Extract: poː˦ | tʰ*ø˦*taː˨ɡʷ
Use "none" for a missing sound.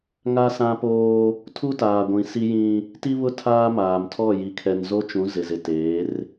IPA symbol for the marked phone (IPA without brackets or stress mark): u˦